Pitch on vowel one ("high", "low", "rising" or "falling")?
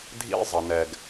high